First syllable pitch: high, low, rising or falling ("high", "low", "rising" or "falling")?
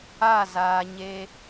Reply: falling